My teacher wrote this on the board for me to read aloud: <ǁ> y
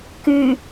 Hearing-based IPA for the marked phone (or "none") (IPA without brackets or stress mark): k